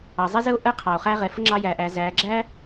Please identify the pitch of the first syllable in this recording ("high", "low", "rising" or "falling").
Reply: low